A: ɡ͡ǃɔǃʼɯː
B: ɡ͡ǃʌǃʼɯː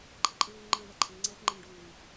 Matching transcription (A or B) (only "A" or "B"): B